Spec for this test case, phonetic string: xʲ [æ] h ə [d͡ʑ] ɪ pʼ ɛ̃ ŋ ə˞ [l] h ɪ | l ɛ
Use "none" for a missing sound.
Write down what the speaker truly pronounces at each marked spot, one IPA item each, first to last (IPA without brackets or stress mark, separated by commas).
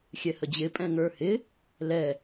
ɛ, d͡ʑ, none